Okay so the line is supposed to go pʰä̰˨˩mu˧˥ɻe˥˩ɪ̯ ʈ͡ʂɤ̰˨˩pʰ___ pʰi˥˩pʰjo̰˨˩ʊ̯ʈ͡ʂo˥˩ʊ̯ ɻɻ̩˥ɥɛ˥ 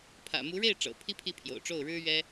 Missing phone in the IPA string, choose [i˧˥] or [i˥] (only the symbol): i˥